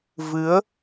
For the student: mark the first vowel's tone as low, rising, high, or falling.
rising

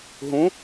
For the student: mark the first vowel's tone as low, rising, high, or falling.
rising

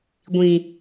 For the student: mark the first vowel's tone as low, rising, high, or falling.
low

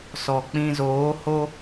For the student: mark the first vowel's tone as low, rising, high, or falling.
low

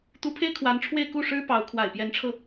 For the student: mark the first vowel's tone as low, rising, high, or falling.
rising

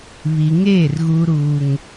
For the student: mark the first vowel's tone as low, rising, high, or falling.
low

